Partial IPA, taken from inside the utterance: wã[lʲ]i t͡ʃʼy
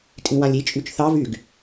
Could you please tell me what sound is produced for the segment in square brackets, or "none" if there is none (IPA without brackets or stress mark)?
lʲ